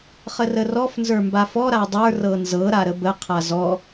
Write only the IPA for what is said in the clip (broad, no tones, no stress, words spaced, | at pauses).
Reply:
χərərɔf nzə˞mbafɔ ɾadˤə˞ rɤnzɤ ɾaɾəbə qʰazɔ